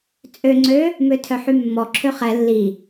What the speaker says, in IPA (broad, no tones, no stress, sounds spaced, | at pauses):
t͡sʼ ø ŋ͡ǀ ø | m ø tʰ œ ħ y mː ɔ ǁʰ ø χ ɛ lː i